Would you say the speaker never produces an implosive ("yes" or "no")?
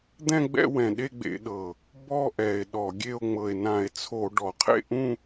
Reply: no